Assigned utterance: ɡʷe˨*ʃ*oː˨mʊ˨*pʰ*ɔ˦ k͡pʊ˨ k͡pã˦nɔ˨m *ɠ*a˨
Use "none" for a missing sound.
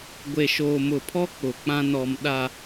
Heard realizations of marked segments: ʃ, pʰ, ɗ

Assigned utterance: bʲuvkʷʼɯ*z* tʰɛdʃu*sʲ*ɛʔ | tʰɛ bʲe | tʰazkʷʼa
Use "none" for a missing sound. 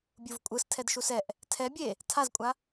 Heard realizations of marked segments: s, s

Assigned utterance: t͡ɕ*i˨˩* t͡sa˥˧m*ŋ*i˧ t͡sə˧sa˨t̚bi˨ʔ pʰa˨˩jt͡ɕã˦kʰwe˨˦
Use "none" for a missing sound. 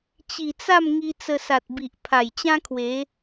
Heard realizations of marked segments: i˨˩, ŋ

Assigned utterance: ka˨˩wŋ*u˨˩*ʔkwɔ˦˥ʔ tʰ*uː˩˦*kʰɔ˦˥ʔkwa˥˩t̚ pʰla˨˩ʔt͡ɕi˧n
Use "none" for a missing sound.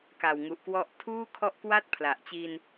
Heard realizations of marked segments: u˨˩, uː˥˩

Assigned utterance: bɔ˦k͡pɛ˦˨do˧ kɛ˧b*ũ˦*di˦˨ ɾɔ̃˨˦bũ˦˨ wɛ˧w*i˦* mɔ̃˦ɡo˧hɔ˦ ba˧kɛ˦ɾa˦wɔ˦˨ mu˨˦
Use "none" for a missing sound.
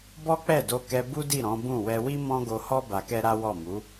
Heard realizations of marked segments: u˦, i˦

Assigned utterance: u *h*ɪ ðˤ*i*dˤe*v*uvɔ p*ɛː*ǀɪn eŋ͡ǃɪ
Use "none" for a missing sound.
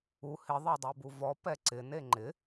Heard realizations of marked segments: h, e, b, ɛ

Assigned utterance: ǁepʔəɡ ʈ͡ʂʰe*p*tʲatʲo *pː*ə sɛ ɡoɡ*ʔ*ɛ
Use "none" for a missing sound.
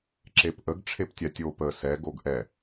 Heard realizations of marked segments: p, p, ʔ

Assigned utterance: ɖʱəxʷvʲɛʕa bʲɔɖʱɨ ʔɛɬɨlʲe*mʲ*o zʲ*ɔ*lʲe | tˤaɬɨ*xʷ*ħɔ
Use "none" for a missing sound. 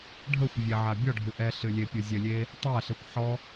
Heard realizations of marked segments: pʲ, ə, kʷ

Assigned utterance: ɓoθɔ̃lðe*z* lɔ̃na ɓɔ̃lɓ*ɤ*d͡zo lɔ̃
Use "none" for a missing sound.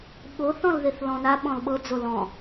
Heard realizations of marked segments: θ, ɤ

